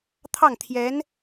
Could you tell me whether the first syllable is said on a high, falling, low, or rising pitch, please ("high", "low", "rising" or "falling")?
falling